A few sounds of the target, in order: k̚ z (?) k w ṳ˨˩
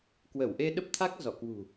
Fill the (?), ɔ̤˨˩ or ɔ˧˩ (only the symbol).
ɔ˧˩